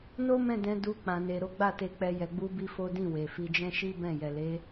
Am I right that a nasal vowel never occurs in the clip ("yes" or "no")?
no